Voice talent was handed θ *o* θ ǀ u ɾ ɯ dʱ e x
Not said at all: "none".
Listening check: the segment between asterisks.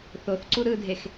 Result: o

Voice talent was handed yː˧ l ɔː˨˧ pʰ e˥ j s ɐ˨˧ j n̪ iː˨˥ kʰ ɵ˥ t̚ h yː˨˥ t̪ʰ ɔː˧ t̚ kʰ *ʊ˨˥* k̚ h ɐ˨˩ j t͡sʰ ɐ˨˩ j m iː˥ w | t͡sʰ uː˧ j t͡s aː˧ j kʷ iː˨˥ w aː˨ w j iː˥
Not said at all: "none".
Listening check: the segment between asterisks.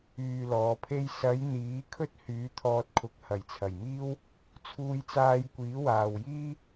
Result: ʊ˨˥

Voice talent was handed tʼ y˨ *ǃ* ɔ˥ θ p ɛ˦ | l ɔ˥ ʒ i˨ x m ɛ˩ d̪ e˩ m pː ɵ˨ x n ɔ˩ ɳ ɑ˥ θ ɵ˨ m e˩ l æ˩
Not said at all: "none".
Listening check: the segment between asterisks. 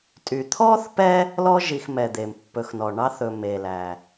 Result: t̪ʰ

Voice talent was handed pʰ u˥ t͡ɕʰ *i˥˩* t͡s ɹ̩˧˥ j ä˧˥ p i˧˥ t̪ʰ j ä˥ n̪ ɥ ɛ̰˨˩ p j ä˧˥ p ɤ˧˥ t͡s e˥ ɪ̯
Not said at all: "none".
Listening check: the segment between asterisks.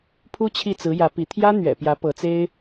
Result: i˥˩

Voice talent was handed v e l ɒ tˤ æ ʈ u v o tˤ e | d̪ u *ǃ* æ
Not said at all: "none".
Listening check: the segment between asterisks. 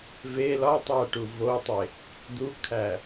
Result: kʰ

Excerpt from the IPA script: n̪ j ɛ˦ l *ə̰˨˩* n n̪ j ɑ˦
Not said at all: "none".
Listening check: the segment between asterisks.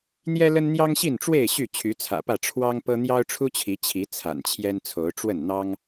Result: ə˦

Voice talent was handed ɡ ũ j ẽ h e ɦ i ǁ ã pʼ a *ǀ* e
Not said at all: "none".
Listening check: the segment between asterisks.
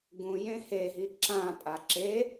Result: ǁ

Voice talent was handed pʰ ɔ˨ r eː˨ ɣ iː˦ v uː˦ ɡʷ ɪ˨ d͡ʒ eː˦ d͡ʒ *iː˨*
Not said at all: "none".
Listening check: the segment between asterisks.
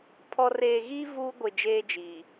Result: iː˨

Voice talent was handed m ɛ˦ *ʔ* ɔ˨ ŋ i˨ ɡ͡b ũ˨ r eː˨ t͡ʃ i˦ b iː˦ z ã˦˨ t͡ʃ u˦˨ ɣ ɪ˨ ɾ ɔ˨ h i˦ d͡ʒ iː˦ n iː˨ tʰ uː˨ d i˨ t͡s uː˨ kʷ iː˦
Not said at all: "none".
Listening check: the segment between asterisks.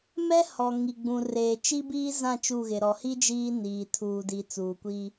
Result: h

